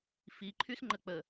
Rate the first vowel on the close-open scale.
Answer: close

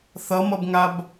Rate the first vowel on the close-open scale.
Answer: mid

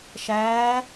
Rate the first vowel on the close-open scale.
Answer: open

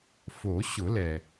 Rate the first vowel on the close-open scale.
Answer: mid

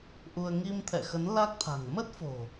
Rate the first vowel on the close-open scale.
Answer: close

